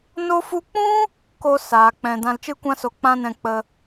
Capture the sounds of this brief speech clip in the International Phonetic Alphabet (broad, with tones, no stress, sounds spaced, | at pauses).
n o˧ f u˧ k͡p ũ˦ | k o˧ s aː˨ k͡p ɛ̃˨ d ã˧ l t͡ʃ ɨ˦ kʷ ã˦ s o˧ k͡p ã˦ n ɛ̃˧ k͡p ə˧